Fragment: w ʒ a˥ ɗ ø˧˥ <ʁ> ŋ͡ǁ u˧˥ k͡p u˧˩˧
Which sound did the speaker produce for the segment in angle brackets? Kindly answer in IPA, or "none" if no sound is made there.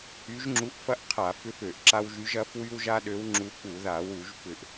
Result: w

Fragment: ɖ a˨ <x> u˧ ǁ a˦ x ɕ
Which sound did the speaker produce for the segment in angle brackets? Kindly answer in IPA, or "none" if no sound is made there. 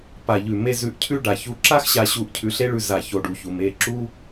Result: ç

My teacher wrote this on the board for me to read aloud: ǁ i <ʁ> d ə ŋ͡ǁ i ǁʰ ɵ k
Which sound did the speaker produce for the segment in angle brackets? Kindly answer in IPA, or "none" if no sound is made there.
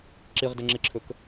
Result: ʁ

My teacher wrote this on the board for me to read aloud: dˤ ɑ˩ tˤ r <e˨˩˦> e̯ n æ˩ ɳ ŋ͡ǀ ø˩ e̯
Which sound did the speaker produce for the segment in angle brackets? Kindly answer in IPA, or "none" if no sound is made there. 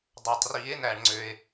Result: i˨˩˦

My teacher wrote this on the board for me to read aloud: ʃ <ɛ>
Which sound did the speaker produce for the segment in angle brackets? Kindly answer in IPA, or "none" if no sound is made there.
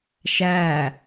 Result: æ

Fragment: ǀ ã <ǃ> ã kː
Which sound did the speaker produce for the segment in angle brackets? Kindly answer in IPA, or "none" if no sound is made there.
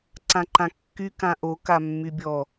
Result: ǃ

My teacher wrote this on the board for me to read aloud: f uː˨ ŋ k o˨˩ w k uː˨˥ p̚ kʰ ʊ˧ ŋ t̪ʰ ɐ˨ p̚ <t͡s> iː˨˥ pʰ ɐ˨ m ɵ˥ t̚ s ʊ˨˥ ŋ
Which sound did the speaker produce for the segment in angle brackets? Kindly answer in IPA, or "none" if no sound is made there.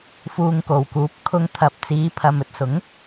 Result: t͡s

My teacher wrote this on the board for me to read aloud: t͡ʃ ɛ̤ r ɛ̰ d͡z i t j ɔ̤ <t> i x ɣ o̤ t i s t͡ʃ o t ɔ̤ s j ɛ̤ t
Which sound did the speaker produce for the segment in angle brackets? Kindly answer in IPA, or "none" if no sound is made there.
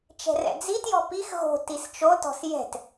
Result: p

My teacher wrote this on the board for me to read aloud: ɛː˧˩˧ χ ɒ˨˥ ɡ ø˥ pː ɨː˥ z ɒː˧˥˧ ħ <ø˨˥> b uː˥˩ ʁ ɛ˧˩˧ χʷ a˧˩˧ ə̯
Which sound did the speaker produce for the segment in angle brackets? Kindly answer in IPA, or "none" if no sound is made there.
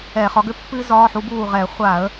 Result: u˨˥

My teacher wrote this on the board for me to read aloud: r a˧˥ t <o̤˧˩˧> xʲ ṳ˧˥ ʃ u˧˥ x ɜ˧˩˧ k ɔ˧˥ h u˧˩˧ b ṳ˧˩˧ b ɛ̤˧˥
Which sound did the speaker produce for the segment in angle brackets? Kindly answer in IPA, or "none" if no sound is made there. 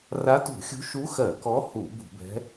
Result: ṳ˧˩˧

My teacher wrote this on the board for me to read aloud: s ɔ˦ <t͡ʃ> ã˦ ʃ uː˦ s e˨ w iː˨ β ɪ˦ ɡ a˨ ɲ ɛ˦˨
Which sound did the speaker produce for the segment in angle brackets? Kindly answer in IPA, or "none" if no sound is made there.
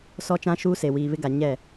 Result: t͡ʃ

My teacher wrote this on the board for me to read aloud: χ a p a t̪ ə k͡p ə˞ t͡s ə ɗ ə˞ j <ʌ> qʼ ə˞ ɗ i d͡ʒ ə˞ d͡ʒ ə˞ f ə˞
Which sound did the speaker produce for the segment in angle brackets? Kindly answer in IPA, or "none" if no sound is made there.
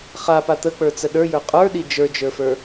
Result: ə˞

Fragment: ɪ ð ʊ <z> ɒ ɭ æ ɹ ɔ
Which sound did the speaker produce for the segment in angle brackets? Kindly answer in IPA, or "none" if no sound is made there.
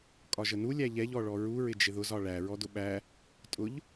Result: z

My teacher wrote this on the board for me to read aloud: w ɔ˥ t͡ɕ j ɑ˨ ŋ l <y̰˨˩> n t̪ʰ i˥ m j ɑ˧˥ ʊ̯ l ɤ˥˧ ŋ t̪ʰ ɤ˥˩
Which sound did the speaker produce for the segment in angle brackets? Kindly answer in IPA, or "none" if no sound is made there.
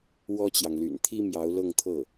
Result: y̰˨˩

